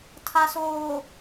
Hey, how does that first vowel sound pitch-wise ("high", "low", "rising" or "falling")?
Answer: low